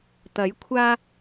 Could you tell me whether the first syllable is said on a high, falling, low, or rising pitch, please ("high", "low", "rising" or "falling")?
rising